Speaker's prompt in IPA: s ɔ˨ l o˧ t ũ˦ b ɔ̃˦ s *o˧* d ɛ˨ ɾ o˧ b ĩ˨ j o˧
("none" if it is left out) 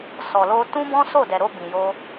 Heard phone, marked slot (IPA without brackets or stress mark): o˦˨